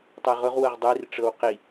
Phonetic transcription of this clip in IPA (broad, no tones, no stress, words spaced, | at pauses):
tˤaʁʊʁ wɤʁdˤir ʈ͡ʂɤwqi